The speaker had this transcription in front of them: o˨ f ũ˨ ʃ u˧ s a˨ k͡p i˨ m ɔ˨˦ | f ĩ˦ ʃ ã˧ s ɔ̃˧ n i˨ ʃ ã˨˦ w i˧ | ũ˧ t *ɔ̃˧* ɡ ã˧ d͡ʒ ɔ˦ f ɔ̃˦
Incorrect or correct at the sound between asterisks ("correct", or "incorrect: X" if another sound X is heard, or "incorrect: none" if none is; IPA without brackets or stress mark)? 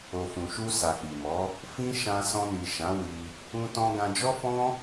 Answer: correct